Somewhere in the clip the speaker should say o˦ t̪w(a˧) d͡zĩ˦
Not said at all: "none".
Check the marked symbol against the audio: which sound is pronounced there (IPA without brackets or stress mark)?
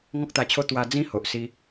a˧